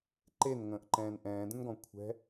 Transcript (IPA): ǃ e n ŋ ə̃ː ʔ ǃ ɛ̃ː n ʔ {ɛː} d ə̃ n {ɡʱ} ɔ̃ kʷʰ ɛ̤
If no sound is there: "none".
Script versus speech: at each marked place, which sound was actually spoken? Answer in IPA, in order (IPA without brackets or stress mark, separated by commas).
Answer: ɛ̃ː, ɡ